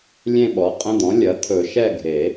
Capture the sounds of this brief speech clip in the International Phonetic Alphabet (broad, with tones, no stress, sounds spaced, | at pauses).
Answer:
lʲ ẽ˦˨ ɓ ɔ˩˥ qʼ ə̃˧˥˧ d̪ ɔ̃˩˥ lʲ ɐ˩˥ t̪ʰ ɵ˨˩˦ ʃ ɛ˦˨ ɡʱ e˨˩˦